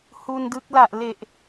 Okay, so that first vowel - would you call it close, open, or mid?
close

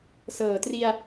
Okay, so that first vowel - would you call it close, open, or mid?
mid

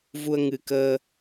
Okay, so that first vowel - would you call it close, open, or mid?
close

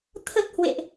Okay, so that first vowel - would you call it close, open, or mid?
mid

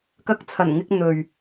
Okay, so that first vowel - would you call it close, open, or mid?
open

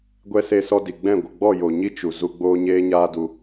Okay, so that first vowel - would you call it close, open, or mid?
mid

